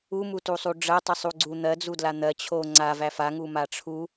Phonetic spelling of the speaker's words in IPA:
u m u t u sˤ u ɖ͡ʐ ɜ tˤ ɨ sˤ u ɡ͡ǀ u n̪ ɜ d͡z u d l a n̪ ɜ t͡ɕʰ o ŋ͡ǀ a v æ f a ŋ u m a ʈ͡ʂʰ u

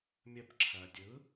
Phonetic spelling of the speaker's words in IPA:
mʲ ə b ǁʰ ɜ dʲ ɯ

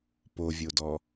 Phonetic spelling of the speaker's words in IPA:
p o vʲ o d ɔ

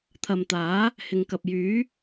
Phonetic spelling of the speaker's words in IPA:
t̪ʰ ɐ˨ m t̪ aː˨˥ | h ɪ˨ ŋ k ɐ˨ p̚ j yː˨˥

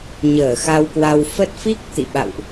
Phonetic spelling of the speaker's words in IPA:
ɲ əː˧˩ x a˧ w k w a˧ w f ə˦˥ t̚ f i˦˥ k̚ t̪ ḭ˧˨ ɓ a̰˧˨ w ʔ

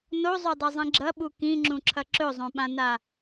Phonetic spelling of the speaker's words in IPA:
n o zˤ o dˤ ɐ zˤ ĩ ɡ͡ǁ ɐ ɓ u k ĩ ŋ͡ǁ ũ ǁʰ ɐ ǁ ɵ zˤ õ ɓ ã n a

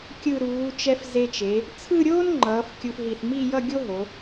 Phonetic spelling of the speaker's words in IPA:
kʲ ɯ˧˩ ɾ uː˩˧ t͡ʃ ɛ˧ f z e˧ t͡ʃ e˩˧ | t͡sʰ ɯ˥˧ ɾʲ oː˥ n ŋ͡ǃ ʌː˩˧ f kʲ u˧ f ɦ i˧˩ θ m i˥˧ j ʌ˥˧ ɡʲ o˥ ɦ o˩˧

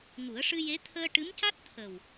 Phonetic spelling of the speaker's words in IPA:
ŋ u˨˩˦ ə̯ ʂ ɨ˧ j e˧˥ t̪ʰ əː˧ ʈ ɨ˧˥ m c a˦˥ t̚ t̪ʰ ə˨˩ w

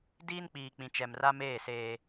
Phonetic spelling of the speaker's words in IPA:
d iː˦ n k͡p iː˨ k͡p ĩ˨ t͡ʃ ɛ˨ m r a˦ m eː˦˨ s eː˦

